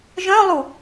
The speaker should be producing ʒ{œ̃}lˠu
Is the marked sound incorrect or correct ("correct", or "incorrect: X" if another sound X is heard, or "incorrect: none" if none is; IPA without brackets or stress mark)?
correct